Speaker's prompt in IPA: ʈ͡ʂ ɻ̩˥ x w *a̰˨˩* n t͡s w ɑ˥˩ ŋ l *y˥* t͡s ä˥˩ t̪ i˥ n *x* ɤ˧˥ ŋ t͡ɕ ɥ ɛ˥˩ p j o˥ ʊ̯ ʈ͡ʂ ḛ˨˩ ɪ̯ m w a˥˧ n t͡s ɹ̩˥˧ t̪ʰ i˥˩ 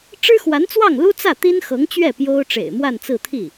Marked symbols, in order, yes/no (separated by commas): no, no, yes